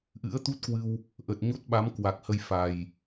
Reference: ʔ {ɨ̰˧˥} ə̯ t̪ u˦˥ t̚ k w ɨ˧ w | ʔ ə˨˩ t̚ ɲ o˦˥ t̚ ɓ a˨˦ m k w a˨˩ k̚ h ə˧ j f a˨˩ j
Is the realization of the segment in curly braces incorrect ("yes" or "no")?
no